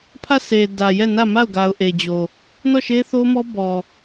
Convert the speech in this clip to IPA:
pʰ ä˦˨ s e˨ d ä˨ j ɛ˦˨ n ä˦˨ m a˦˨ ʊ̯ ɡ a˨ ʊ̯ ʔ e˨ d͡ʑ o˨ | n ɔ˦˨ ʃ e˦ θ o˦ m ɔ˦ b ɔ˨

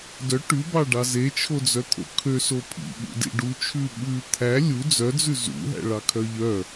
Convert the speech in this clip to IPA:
d œ ʈ ʉ b ɑ ɖ ɑ z e t͡ʃʰ o d͡z œ t̪ʰ o̰ kʰ ø s o pʰ ḭ ɓ ṵ d ḭ ɖ u t͡ʃʰ ʉ ɓ ʉ t̪ʰ æ lʲ u d͡z œ d͡z ʉ z ṵ ɦ æ̰ ɭ ɑ kʰ œ ʎ œ

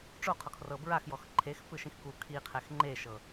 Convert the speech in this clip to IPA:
ʈ͡ʂ o qʰ ɔ kʰ r ɤ b ɹ a x j ɔ x ǃʰ e x p ɯ ʃ ĩ x k u kʰ i qʰ ɛ x ŋ͡ǃ e ʃ ɤ

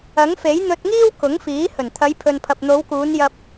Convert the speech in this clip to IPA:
ɐ˨˥ ŋ f e˨˥ j n̪ ɵ˧ t̚ ŋ iː˥ w k ʊ˨˥ ŋ f iː˨˥ h ɵ˨˩ n t̪ʰ ɐ˨˧ j pʰ ɵ˨ n pʰ ɐ˨ p̚ n̪ o˨˧ w k uː˨˧ n j ɐ˧ p̚

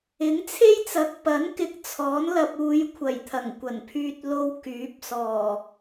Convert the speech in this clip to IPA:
ɪ˨˥ ŋ t͡sʰ e˥ j t͡s ɐ˨ k̚ p ɐ˨˥ n k ɪ˨˥ k̚ t͡sʰ ɔː˨˥ n l ɐ˧ p̚ uː˨˧ j kʷʰ ɐ˨˩ j t̪ʰ ɐ˨˩ ŋ kʷ ɐ˨˩ n pʰ yː˧ t̚ l o˧ w k yː˨˥ p̚ s ɔː˨˩

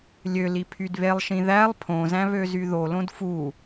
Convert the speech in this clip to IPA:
lʲ ø l i pʰ y d β e lˠ ʃ ĩ ð æ lˠ pʰ õ z æ̃ β ø z y ð o l õ d f u

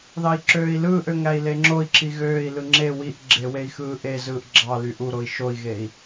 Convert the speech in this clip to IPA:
ð ɑ i̯ ǁ øː i̯ l ɯː ʔ ø ŋ æ i̯ l e ŋ͡ǁ o i̯ ǁ i ɣ øː i̯ l ɯ ŋ͡ǁ e w i ʔ ɡ͡ǁ e w e i̯ x ɯː ʔ e z ɯː ʔ ɡ͡ǁ ɑ l y ʔ u ɾ o i̯ ʃ o i̯ ɣ e i̯

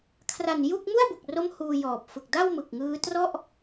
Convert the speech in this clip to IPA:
kʰ r a˨˩ n j u˥˩ k̚ m u˥˩ a̯ b u˨˩ k̚ r o˦˥ m h uː˧ j ɔː˨˩ p̚ f ɯ˨˩ k̚ d a˥˩ w m ɯ˨˩ k̚ ŋ ɯː˦˥ t r ɔ˥˩ ʔ

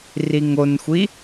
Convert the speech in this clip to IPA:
r i ŋ o n xʷ i

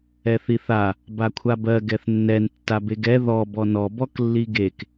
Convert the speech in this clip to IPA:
ɛ θ i θ a | b a kʷʰ a b ɜ ɡ ɛ θ nː ɛ n tː a b e ɡ ɛ ð ɔ b ɔ n ɔ b ɔ k lː i ɡ e k

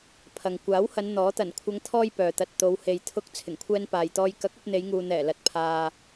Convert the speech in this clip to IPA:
pʰ ɐ˨ ŋ kʷ aː˨˥ w h ɐ˨˧ n n̪ ɔː˨˥ t̪ ɐ˨˩ n kʷʰ ɐ˨˧ ŋ t̪ʰ ɔː˥ j p œː˨ t̪ ɐ˧ t̚ t̪ o˨˧ w h e˨ j t̪ʰ ʊ˧ k̚ t͡sʰ ɪ˨˩ ŋ kʷʰ ɛː˧ n p aː˨ j t̪ ɔː˧ j k ɐ˨˥ k̚ ɐ˧ p̚ n̪ e˨˧ j ŋ uː˨ n̪ ɛː˨˩ l ɐ˨ t̚ pʰ aː˨

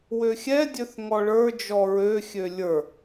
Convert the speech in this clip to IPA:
w ø xʲ ɛ dʲ ø θ ŋ ɔ ɭ ə˞ d͡ʒ ɔ ɹ ø xʲ ø lʲ ə˞

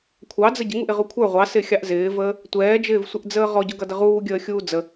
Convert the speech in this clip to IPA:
kʷʰ ɑ d͡z ə ɟ ɪ ŋ u ʔ ɪ ʁ u kʷʰ ə˞ ʁʷ ɑ s ɪ xʲ ɑ ʔ z ɪː v əː | tʷ ɛː d͡ʒ ɪː v sʷ ɪ ʔ d͡z əː ʁ ɔ ɟ ʊ ɡ ʌ d ə ʁ uː ɡʲ əː xʲ uː d͡z ə

